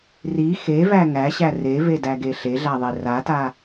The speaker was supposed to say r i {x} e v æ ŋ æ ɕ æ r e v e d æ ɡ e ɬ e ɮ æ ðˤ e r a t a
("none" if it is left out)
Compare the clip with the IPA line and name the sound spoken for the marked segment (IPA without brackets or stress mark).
x